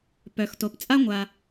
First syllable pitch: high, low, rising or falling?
low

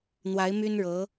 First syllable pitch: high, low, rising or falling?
rising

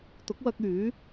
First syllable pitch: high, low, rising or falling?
rising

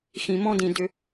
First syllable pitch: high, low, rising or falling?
low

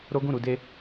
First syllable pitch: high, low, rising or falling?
high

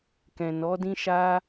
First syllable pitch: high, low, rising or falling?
low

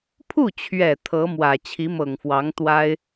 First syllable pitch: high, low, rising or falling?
falling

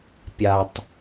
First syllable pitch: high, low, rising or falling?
low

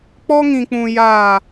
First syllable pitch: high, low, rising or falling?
high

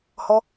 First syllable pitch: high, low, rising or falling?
high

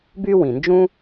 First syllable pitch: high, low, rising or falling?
high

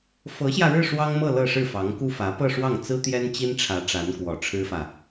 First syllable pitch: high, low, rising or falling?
rising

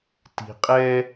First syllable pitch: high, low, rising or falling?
low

